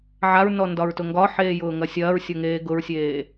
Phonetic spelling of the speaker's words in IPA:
ʕ a ɹ n ɔ n d ɒ ɹ t ʊ ŋ ɡ ɒ ħ eː j ʊː ŋ ɐ sʲ ɐː ɹ sʲ ʊ ŋ eː ɡ ʊ ɹ sʲ eː

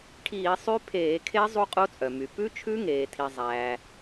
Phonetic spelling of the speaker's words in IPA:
ʈʰ iː˧˩˧ sˤ y˦˥ pʰ eː˧˩˧ kʰ e˦˥ zˤ u˦˥ qʼ o˦˥ t͡sʼ œ˩ m y˩ p ʉ˦˥ t͡ʃʰ ʉ˦˥ ŋ eː˩ tʰ i˩ zˤ æː˩

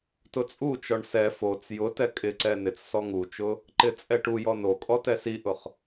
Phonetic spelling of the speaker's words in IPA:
t ʊ t͡sʼ u t͡ʃ ɔ ɳ s ɛ f o t͡s j ʊ t ɛ kʼ ɪ ǀ ɛ n ɪ t͡s s ɔ ŋ u t͡ʃ ʊ | ǃ ɪ t͡sʼ ɛ ʈ u j ɔ n o kʼ ɔ t ɛ s i ʔ ʊ χ

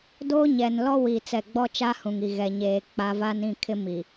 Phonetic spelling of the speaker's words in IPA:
d oː˦ ɲ ɛ˨ n l ɔ˦ w iː˨ t͡s ɛ˦˨ ɡ͡b ɔ˦ t͡ʃ a˦ h ũ˨ ŋ i˨ ɣ ɛ˨ ɲ eː˨ k͡p a˨˦ v a˦ n ĩ˦˨ kʰ ɪ˦ m i˨

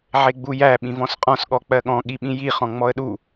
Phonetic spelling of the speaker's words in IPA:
ʕ e ɡ͡b u j æ ɓ ĩ v ɔ̃ s qʼ ɔ̃ s ɠ ɔ k͡p ɜ ɠ ɔ̃ ɠ i ɓ ĩ j i χ ɔ̃ ŋ͡m ɔ ə̯ ɗ u

